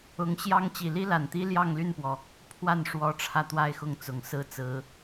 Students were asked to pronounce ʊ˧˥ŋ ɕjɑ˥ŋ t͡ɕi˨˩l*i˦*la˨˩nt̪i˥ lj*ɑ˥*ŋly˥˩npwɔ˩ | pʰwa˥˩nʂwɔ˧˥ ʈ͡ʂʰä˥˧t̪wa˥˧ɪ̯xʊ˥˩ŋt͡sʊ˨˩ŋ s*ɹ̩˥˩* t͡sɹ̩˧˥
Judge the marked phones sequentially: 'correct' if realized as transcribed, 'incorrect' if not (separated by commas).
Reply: incorrect, incorrect, correct